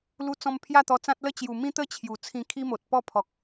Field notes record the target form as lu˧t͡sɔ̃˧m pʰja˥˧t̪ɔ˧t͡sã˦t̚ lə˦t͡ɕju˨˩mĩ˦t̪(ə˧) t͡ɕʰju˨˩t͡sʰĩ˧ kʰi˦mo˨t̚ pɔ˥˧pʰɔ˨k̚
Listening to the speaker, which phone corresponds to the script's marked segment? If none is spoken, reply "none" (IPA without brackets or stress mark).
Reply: ə˦